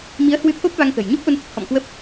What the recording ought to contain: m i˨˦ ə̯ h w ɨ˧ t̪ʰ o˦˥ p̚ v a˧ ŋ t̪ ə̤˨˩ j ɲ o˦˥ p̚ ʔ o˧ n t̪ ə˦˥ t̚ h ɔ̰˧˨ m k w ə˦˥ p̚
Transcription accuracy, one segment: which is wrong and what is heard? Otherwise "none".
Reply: none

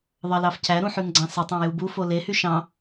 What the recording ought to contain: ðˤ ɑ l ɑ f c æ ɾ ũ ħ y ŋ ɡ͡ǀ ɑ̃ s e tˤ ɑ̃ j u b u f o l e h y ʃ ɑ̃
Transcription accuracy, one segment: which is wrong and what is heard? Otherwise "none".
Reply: none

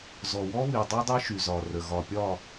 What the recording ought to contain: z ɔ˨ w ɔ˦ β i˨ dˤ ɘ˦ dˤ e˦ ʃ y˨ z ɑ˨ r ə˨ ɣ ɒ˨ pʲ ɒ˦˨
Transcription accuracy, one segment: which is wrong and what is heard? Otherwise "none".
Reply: ɑ˨ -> ɒ˨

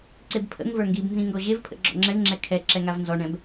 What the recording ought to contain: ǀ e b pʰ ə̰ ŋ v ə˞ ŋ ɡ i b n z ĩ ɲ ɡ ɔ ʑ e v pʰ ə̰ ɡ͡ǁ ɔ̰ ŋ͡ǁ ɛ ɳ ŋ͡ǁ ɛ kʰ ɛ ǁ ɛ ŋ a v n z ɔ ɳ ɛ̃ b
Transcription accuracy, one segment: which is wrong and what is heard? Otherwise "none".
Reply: ɲ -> ŋ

